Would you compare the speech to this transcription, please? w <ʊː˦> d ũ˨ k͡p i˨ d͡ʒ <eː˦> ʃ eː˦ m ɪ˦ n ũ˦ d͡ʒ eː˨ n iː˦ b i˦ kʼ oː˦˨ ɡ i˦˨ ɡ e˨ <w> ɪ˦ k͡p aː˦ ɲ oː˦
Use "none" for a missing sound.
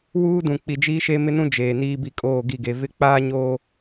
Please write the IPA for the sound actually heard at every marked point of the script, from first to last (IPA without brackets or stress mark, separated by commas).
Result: uː˦, iː˦, v